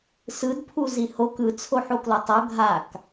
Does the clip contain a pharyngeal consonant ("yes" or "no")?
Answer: yes